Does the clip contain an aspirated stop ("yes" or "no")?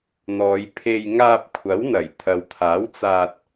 yes